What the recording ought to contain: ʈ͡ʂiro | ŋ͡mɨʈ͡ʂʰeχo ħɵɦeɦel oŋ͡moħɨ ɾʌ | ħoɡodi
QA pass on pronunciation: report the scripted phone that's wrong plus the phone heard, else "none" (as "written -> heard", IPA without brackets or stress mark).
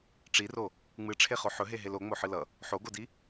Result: ɾ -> l